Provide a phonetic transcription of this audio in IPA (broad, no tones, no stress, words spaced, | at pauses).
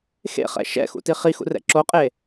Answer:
xḛχɛ̰ ʃɛ̰xṵ tiχixṵ rɛ̰ǁoqʼe